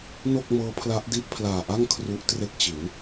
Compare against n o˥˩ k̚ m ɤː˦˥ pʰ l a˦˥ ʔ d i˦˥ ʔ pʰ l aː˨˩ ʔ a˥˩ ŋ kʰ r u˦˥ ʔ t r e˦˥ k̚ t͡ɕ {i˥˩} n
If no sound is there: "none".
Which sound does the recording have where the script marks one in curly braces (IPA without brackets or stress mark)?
i˩˦